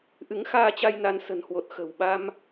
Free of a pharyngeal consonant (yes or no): yes